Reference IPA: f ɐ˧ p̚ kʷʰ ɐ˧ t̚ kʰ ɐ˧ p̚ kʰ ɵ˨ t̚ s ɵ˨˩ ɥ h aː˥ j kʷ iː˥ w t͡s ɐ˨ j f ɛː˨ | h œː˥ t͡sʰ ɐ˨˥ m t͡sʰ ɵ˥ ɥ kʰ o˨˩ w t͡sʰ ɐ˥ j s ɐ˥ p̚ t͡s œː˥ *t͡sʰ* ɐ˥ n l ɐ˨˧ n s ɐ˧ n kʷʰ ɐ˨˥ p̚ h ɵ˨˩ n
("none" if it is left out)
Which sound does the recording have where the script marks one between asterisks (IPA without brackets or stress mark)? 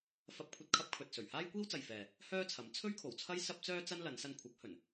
t͡s